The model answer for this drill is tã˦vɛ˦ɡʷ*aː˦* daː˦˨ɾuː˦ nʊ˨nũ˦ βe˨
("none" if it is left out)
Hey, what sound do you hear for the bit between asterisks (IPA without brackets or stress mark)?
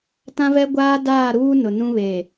aː˦